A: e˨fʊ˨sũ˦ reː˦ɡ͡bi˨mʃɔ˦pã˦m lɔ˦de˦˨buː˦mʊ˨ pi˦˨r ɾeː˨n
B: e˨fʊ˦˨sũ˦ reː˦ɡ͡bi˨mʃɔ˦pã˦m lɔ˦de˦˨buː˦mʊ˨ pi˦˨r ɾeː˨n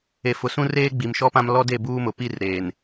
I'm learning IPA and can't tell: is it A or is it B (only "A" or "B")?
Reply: A